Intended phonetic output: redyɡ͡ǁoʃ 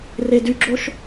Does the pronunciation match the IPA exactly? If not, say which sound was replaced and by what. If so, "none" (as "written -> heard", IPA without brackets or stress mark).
none